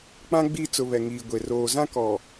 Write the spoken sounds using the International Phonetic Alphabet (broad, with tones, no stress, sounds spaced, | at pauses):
k͡p ã˦ ɡ͡b i˦˨ t͡s ʊ˨ β ɛ˨ ŋ iː˨ ɡʷ e˨ r oː˨ z ã˦ k ɔ˨